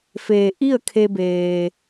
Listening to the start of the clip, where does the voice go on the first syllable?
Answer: low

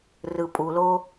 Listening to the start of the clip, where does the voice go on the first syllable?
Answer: low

